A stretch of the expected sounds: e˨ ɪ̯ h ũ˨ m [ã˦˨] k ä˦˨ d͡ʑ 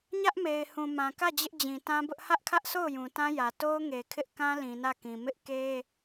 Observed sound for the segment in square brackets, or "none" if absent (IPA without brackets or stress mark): ã˨